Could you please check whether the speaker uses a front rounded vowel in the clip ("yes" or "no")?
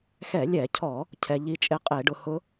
no